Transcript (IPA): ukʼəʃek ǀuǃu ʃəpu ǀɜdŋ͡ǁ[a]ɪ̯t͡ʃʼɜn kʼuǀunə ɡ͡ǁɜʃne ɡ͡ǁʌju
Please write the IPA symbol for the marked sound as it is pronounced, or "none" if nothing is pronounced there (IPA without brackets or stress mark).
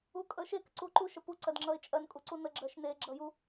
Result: ʌ